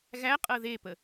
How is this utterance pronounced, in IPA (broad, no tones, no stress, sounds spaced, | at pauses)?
ɣ æ qʼ ɤ ð e p ə